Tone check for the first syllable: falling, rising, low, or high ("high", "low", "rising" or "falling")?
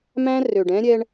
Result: high